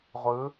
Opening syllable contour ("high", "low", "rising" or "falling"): rising